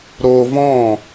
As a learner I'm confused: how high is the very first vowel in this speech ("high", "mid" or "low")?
mid